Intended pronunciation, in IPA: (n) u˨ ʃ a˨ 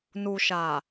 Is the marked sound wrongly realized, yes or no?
no